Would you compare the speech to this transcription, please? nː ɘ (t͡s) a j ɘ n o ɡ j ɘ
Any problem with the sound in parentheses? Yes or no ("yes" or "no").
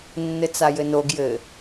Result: no